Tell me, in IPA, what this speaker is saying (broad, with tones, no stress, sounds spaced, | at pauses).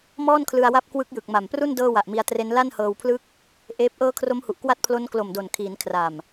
m ɔː˥˩ n kʰ l ɯ˧ a̯ w a˦˥ p̚ k w ɯ˦˥ k̚ j ɯ˨˩ k̚ m a˨˩ m p r u˥˩ n d ɤː˥˩ w a˨˩ ʔ m i˧ a̯ t r e˦˥ n l a˥˩ n h ɤː˧ w pʰ l ɯ˥˩ k̚ | ʔ eː˦˥ p̚ ʔ ɤː˦˥ kʰ r o˦˥ m h u˨˩ ʔ k w a˦˥ t̚ pʰ l o˦˥ n k l o˨˩ m d o˨˩ n kʰ iː˩˦ n kʰ r a˨˩ m